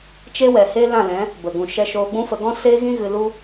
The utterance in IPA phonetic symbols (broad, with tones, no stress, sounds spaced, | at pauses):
t͡ʃ e˦ w ɛ˨ h eː˦ l ã˦˨ l ɛ̃˨˦ | b ə˨ ɡ ũ˨ ʃ ɛ˧ ʃ oː˧ ɡ͡b ũ˦ f ə˧ ɡ ɔ̃˦ s eː˦ ɣ ĩ˦ ɣ ɨ˧ l u˦